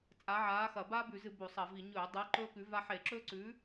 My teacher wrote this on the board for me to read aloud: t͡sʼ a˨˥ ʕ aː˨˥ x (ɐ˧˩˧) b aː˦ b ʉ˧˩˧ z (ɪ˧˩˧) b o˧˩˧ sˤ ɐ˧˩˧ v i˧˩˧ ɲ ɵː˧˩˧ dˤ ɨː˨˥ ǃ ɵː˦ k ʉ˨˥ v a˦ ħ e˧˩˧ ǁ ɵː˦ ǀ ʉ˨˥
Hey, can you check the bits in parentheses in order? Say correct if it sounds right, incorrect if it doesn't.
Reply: correct, incorrect

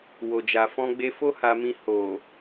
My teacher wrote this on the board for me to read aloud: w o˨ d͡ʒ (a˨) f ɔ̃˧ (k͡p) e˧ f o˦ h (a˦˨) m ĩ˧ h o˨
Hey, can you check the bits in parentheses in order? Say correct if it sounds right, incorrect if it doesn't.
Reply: correct, incorrect, incorrect

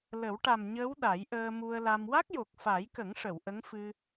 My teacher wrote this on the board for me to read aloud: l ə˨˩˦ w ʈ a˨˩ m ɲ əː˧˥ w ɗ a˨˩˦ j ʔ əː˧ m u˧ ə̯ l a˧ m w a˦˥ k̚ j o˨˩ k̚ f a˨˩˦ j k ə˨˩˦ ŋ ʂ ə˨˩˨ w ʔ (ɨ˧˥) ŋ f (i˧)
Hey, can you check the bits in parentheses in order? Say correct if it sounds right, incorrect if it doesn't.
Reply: incorrect, incorrect

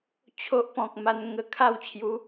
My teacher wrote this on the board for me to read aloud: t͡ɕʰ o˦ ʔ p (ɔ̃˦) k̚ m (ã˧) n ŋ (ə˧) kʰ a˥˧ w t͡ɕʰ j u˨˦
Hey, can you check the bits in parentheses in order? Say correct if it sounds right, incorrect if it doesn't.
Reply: incorrect, incorrect, correct

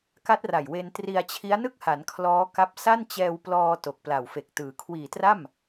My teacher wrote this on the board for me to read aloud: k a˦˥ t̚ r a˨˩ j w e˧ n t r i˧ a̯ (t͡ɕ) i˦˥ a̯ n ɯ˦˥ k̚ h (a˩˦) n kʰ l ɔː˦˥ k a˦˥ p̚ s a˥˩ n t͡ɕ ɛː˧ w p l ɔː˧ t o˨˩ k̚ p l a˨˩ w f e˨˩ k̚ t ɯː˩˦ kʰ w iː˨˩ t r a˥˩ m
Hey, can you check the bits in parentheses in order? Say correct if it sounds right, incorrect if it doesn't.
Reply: incorrect, correct

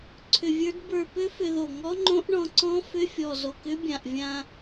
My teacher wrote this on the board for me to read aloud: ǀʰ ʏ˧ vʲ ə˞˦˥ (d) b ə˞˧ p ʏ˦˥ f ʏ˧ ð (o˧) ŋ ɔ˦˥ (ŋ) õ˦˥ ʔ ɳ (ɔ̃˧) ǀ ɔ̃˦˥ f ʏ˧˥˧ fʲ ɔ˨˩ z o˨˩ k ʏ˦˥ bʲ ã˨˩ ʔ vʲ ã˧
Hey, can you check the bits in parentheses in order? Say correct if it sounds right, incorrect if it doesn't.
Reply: correct, incorrect, incorrect, correct

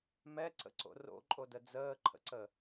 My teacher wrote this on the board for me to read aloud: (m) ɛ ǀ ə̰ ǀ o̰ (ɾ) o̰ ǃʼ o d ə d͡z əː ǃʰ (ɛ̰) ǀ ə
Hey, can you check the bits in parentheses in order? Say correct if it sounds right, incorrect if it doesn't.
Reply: correct, incorrect, incorrect

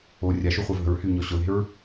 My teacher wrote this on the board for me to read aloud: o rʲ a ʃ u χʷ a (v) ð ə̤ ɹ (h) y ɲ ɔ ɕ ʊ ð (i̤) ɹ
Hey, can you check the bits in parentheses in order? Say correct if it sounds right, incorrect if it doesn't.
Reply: correct, correct, incorrect

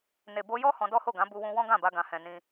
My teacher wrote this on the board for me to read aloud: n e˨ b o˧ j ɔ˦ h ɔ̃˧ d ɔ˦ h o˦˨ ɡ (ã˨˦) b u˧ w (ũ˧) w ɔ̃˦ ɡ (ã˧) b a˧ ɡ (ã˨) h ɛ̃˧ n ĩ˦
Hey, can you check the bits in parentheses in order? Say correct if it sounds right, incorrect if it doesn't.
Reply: correct, correct, incorrect, incorrect

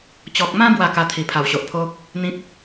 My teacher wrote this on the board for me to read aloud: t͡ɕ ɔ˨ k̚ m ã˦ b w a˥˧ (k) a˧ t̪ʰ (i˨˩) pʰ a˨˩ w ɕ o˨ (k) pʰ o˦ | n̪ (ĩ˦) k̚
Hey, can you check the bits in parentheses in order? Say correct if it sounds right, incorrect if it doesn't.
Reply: correct, correct, incorrect, correct

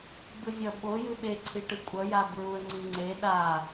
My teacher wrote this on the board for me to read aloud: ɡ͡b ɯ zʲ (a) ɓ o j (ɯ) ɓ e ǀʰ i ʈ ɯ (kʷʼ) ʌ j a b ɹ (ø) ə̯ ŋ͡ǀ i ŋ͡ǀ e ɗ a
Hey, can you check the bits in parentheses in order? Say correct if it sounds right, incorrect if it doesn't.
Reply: incorrect, correct, correct, incorrect

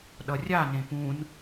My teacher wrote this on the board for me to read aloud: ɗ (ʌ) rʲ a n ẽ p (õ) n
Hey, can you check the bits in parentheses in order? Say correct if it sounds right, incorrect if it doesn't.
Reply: correct, incorrect

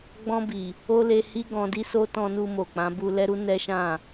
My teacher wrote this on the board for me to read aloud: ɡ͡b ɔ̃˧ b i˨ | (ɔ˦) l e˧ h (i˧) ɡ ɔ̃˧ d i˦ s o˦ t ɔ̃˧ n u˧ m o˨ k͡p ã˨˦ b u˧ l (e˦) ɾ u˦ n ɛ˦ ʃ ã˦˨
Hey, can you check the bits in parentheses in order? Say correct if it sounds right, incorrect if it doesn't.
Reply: incorrect, incorrect, incorrect

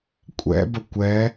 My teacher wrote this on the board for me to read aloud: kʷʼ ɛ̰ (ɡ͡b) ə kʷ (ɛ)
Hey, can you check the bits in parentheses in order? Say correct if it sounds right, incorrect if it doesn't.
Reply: incorrect, correct

